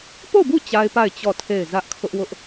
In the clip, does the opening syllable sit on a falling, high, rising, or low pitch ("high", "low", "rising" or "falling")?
falling